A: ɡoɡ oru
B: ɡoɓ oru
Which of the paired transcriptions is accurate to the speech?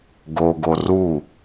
A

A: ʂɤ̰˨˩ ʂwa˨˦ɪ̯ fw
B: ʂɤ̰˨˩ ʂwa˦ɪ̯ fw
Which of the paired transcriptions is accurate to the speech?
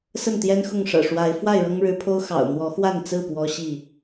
A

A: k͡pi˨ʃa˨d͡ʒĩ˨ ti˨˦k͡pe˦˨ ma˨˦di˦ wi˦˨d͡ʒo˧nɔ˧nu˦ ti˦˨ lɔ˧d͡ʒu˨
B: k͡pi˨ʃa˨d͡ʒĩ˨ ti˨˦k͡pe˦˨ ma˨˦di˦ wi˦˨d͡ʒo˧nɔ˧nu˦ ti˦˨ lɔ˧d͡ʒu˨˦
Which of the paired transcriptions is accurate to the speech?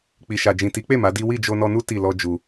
A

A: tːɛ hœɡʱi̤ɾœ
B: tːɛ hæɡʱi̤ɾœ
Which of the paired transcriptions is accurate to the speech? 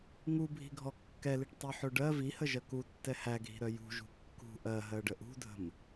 B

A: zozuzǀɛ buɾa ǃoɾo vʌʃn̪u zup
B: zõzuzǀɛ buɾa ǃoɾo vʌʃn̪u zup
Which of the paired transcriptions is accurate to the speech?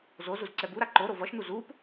A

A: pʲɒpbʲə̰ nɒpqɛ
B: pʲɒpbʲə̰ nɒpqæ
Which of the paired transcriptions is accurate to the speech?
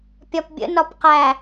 B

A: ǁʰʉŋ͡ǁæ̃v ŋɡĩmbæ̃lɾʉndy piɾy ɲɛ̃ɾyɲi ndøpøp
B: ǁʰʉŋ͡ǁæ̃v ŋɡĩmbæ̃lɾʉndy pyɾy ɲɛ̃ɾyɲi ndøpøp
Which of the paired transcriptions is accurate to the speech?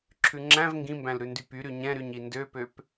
B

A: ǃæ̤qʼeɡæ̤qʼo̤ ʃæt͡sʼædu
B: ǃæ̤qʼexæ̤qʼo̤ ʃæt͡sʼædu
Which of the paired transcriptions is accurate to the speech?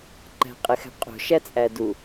B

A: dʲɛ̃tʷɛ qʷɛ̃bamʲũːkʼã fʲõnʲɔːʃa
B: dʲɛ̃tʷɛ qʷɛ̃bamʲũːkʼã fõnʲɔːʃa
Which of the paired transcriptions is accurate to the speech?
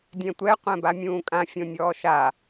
A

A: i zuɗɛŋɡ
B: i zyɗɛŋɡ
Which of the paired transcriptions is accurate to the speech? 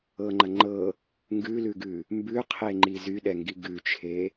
B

